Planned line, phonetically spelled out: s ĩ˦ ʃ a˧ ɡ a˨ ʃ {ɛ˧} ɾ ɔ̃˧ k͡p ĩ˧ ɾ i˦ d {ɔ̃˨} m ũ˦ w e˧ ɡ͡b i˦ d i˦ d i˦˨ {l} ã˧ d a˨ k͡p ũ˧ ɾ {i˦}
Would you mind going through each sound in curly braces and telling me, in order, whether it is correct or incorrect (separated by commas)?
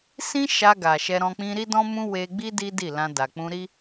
correct, incorrect, correct, correct